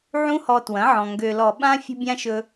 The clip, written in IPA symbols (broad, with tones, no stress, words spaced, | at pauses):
ʕũ˦hɔ˧twɐ̃˨˦ʕɔ̃˨ ŋɡø˨lɔ˨ɓã˦ fʲə̤˦bʲã˦ʃɵ˧